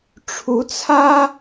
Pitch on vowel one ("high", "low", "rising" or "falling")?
rising